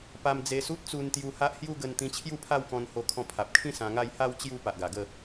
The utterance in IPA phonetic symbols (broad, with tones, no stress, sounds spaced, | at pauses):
p a˧ m d͡z e˧ s u˦ t̚ t͡s u˧ n t̪ j u˧ h a˦ ʔ h j u˦ ɡ ə˧ n t̪ ĩ˧ t͡ɕʰ j u˥˧ pʰ a˥˧ w k ɔ̃˧ n h o˧ kʰ ɔ̃˧ pʰ a˨ p̚ kʰ ĩ˥˧ s ã˧ ŋ a˥˧ j h a˥˧ w t͡ɕ j u˥˧ p a˨ ʔ ɡ a˨˩ ɡ ə˥˧